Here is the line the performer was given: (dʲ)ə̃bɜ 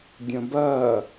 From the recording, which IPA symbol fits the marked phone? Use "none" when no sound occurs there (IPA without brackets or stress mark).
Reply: dʲ